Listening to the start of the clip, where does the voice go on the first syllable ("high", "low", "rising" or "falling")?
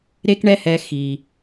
high